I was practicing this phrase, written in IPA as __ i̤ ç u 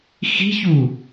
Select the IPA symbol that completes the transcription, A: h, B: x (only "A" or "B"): B